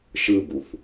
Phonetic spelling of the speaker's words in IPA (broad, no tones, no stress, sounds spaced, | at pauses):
ʃ ɯ b u θ